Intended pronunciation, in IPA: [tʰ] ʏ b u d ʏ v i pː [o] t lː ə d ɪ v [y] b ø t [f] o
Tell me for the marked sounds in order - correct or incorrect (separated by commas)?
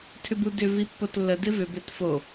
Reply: correct, correct, incorrect, correct